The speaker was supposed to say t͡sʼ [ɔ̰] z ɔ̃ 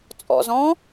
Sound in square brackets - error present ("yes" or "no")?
no